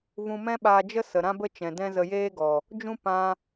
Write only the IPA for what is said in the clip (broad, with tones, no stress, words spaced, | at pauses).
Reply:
vũ˧mɛ̃˦ɓaː˧d͡ʒə˦ sə˨ɾã˦bə˦ t͡ʃɛ̃˨dɛ̃˦zə˧ jeː˦ɡɔ˨ | d͡ʒũ˦pã˧